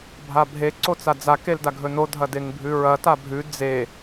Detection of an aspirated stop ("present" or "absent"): absent